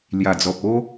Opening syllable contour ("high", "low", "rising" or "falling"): low